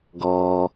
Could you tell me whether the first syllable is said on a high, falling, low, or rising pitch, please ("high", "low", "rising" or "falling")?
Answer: low